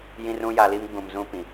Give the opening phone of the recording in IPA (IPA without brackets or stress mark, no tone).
j